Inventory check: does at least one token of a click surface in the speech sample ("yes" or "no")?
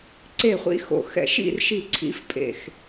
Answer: yes